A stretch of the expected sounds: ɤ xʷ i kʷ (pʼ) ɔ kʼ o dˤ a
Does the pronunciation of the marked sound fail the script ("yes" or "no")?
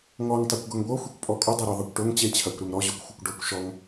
no